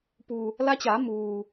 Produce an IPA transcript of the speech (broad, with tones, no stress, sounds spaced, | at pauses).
p u˩ | l a˧˥ t͡ɕ aː˩˧ m uː˩